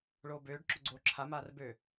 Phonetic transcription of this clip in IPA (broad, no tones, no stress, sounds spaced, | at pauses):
ɭ oː b øː ɖ ǁ ʊ ɡ͡ǀ oː ǁʰ a m aː r b ø